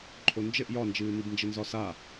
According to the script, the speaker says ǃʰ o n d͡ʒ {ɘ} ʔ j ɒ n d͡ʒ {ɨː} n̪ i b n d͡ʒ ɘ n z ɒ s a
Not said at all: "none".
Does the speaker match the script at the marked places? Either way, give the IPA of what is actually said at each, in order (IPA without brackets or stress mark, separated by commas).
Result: ɘ, ɨː